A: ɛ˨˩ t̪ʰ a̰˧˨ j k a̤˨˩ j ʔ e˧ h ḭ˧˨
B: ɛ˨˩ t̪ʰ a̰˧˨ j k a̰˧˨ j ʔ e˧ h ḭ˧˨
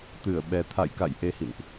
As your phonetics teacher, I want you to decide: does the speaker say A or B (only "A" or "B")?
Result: B